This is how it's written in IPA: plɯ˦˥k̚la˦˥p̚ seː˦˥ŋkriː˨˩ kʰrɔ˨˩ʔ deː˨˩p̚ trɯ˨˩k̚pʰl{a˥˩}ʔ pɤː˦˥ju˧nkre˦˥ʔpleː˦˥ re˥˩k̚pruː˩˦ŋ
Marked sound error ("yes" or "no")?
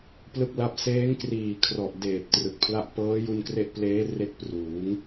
no